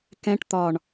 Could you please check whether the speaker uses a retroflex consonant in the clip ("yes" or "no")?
yes